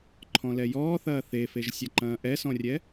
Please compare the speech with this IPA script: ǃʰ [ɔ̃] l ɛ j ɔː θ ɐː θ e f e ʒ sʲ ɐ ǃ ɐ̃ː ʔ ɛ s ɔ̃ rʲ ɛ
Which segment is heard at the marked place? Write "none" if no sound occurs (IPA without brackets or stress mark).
ɔ̃